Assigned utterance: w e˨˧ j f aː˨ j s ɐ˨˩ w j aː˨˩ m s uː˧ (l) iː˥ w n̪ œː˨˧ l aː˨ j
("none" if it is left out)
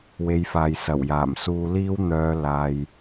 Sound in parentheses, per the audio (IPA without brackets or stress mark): l